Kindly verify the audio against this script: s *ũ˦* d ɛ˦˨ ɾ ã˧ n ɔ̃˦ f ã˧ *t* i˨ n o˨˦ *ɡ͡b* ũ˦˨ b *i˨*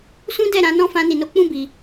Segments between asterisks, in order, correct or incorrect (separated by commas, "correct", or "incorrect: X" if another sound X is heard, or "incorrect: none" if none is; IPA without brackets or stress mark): correct, incorrect: n, incorrect: k͡p, correct